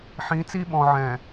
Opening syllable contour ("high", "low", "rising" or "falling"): rising